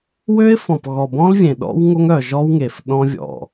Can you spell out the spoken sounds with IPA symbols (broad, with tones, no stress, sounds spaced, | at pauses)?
w ø˦ ɪ̯ f ɔ̃˨ p ɣ ɔ˨ b ɔ̃˦ l vʲ ẽ˨ ɗ ɔ̰˦ w ŋ o˦ ŋ œ˨ ʒ ɔ˦ w ŋ e˨ f ɗ ɔ̃˦ vʲ ɔ̰˨